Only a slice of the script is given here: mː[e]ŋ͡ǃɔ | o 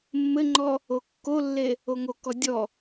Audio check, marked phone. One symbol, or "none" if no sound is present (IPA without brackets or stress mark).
ɘ